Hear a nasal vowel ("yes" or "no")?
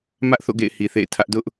no